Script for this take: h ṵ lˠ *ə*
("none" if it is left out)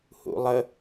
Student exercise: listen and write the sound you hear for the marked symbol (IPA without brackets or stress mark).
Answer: ə